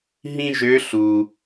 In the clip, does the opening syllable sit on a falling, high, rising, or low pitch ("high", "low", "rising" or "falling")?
high